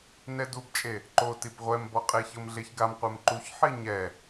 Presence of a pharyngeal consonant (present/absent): present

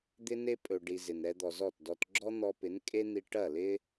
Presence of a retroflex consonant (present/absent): present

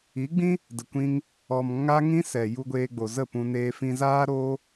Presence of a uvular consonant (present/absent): absent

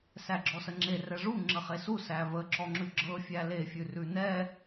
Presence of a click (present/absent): present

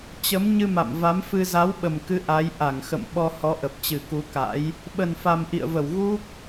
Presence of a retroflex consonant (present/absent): absent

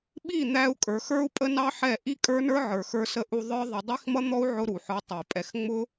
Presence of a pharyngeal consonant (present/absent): present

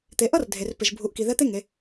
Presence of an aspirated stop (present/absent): absent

